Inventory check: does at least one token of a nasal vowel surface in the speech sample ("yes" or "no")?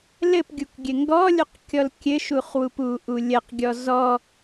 no